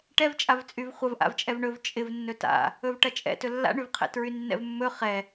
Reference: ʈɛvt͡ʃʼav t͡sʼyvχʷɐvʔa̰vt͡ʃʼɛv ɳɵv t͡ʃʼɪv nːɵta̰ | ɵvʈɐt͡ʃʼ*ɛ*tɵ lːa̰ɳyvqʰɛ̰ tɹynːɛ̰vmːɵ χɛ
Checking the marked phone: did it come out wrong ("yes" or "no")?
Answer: yes